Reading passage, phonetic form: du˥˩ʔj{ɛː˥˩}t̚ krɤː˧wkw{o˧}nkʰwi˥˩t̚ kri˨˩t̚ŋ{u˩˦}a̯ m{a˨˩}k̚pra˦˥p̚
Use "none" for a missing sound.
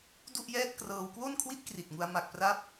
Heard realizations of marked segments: ɛː˥˩, o˥˩, u˧, a˨˩

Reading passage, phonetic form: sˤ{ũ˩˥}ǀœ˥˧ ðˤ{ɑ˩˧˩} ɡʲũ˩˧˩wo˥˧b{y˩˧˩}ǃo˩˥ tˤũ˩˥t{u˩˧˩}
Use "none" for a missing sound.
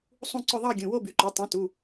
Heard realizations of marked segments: ũ˥˧, ɑ˥˧, y˩˧˩, u˩˧˩

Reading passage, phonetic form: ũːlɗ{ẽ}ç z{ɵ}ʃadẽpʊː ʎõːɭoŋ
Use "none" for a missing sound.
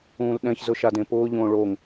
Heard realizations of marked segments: ɛ̃, ʊ

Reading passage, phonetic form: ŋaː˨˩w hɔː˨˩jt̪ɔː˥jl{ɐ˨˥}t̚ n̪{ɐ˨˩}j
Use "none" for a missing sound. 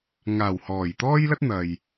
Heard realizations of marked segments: ɐ˥, ɐ˨

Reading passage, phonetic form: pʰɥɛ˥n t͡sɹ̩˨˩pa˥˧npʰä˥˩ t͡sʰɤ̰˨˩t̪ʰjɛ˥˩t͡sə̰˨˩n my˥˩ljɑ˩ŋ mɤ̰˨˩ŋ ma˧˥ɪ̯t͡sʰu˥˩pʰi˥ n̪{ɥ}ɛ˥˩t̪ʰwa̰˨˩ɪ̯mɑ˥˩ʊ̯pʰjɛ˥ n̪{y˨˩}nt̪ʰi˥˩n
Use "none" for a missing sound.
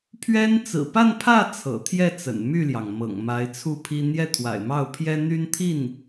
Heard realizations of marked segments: j, y˥

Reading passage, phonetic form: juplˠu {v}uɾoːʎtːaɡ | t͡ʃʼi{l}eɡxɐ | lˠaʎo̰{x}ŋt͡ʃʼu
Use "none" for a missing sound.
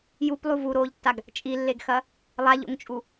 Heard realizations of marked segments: v, lː, none

